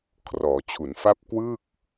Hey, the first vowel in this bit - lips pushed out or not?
yes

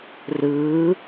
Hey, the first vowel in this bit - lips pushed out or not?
no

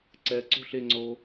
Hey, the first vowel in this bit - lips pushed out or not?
no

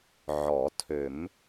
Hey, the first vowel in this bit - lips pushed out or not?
yes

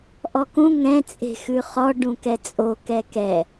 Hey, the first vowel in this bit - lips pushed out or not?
yes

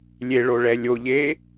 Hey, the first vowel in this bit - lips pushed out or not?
no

